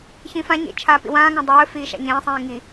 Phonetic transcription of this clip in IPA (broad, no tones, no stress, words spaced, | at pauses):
çĩfãɲḛ t͡ʃʰaːpḭwãːŋã dˤɵːfiː ʃa̰ɲẽːsˤĩː ŋi